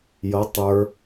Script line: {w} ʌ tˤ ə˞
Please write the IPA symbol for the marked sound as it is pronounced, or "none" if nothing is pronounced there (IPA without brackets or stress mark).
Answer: j